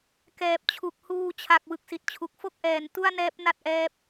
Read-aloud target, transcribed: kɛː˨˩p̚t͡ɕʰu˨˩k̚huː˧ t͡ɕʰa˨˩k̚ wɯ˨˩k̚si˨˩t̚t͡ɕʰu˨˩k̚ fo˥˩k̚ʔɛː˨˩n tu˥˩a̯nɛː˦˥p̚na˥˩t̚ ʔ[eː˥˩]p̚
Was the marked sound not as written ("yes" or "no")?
yes